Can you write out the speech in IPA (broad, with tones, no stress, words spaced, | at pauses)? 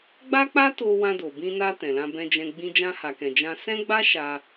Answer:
ɡ͡ba˦k͡pa˦ to˧ wã˧do˨bĩ˧na˧ tɛ̃˨lã˧bɛ̃˧d͡ʒɛ̃˧ ɡ͡bĩ˧d͡ʒã˧ha˨kɛ̃˨ d͡ʒã˧ sɛ̃˦ɡ͡ba˦ ʃa˧